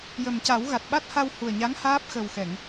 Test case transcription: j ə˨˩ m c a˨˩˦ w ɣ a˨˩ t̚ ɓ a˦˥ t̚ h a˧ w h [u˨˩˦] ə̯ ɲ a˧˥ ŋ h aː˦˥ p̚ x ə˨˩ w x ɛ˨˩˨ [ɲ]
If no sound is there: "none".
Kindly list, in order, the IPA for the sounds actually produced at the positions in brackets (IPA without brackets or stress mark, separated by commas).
u˨˩, ŋ